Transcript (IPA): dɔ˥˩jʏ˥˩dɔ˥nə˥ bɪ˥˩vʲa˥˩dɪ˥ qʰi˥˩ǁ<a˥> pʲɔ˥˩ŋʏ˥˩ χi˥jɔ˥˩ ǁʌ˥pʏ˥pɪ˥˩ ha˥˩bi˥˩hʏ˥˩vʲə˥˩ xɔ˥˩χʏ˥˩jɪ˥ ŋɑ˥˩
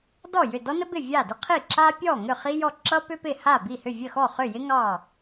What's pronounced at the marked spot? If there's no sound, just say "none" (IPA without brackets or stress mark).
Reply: a˥